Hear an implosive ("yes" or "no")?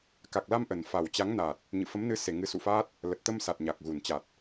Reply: no